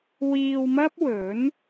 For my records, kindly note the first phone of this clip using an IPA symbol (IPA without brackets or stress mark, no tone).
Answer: w